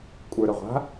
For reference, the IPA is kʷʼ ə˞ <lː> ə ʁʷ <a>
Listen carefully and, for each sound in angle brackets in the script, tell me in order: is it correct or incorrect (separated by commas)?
incorrect, incorrect